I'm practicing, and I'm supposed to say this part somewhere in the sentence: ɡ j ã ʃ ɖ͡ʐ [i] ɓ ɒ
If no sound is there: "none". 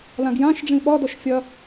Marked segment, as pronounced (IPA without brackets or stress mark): ĩ